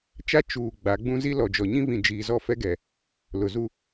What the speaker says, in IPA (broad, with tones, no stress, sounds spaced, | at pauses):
t͡ʃ a˦ t͡ʃ uː˨ ɡ͡b a˨˦ ɡ͡b ũ˦ z i˦ l ɔ˨ d͡ʒ ɔ˨ ɲ ĩ˦ β ĩ˨ d͡ʒ iː˨ z ɔ˦˨ f ɛ˦ ɡ ɛ˨ | l ʊ˨ z u˦